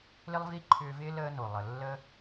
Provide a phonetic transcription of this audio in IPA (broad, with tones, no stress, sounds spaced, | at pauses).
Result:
l ɪ˦ lˠ v i˦ ǃʰ ʏː˧ v ɪː˦ l əː˦ n o˨ lˠ ə˨ lː ə˦